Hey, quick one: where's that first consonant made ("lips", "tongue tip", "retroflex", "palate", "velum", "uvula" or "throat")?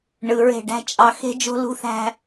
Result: retroflex